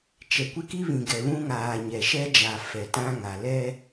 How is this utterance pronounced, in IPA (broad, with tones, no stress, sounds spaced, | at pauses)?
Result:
t͡ʃ ɛ˨ kʷ ɪ˦ k i˦ β ĩ˨ ɡ ɛ˨ β ũ˦ ŋ aː˨ ɲ ɛ˨ ʃ ɛ˦ d͡ʒ a˨ f ɛ˨ t ã˦ ŋ a˨ l ɛ˦